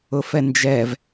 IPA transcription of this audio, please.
ʊfɛnd͡ʒɛv

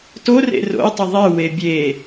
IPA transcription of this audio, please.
torḛ ro̰ɪ̯tˤɪ ðˤe webʲe

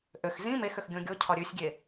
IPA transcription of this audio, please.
ʔøx zĩ mexøx ɡʲõɡʲocʰɒ ɾʲʉsʲɡʲe

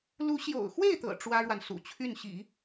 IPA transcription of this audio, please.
lu˧˥ɕjo̰˨˩ʊ̯xwe˥˩ɪ̯t̪ɤ̰˨˩ ʈ͡ʂwä˥ɻwa˨n sṵ˨˩t͡ɕʰy˥˩nɕḭ˨˩˦

